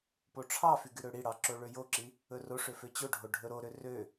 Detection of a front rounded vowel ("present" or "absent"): present